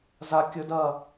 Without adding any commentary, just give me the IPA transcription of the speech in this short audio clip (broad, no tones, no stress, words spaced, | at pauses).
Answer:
za kʲɵdɐː